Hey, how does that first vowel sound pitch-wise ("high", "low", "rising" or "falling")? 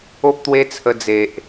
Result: high